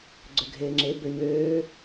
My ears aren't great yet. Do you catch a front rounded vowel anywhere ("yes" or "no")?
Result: yes